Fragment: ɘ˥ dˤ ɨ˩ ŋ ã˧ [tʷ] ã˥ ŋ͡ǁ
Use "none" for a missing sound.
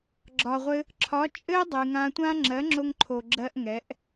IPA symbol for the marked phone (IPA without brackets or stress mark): tʷ